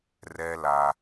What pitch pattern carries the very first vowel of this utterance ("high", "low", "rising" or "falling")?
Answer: low